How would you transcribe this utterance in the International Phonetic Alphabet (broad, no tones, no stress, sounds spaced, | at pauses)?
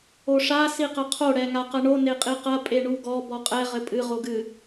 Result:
o ʂ a s i q ɐ qʰ o ɽ ɛ ŋ a q ɐ ɳ o n e qʼ i q ɐ pʼ e ɳ u ɡ ɔ b ɔ qʼ ɛ ʁ ɘ pʼ ɨ ʁ o ɡ ɨ